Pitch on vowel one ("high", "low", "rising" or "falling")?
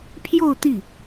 falling